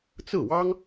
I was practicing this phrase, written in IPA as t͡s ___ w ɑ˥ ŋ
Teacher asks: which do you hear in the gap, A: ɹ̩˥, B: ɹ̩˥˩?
B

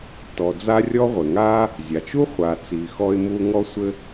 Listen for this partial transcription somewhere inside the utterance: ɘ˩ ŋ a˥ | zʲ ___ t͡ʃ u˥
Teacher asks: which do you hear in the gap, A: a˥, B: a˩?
B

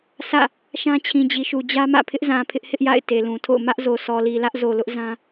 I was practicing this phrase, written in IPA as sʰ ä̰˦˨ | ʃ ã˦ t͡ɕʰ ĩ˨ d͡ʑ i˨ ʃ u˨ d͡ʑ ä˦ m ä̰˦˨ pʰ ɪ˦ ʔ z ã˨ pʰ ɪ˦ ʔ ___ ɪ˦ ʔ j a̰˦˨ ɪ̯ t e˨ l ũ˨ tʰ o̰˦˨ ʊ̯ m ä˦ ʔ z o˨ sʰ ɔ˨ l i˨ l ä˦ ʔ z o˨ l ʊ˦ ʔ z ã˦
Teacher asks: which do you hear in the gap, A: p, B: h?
B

